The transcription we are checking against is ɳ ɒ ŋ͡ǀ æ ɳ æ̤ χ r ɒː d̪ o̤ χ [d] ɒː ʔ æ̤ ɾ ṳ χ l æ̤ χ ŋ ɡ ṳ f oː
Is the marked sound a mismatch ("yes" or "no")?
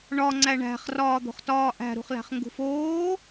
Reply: yes